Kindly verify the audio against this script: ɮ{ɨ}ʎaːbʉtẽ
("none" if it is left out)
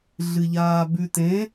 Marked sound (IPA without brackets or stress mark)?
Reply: ɨ